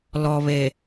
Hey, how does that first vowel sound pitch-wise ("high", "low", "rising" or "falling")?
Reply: low